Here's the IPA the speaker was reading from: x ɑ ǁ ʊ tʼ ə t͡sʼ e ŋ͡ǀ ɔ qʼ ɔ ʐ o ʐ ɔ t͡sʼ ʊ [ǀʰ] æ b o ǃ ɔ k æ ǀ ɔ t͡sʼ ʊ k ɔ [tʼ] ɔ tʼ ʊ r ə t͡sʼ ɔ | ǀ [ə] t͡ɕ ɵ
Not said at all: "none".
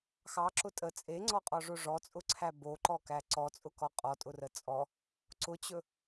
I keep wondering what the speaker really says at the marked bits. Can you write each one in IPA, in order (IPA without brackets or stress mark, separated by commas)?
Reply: ǀʰ, qʼ, ʊ